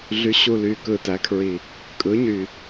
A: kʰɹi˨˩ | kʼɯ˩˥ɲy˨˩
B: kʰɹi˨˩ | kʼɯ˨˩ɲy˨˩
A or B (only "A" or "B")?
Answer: A